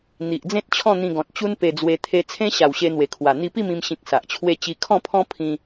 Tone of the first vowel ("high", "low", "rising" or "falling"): low